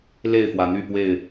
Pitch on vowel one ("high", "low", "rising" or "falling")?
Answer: falling